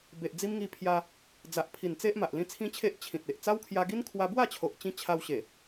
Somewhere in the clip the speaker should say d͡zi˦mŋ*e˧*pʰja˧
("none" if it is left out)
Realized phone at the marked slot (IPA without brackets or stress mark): i˧